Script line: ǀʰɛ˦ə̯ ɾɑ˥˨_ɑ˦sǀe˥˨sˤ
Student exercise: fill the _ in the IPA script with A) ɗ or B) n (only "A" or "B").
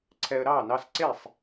B